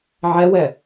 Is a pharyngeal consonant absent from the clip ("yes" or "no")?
no